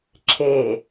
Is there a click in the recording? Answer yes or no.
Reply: yes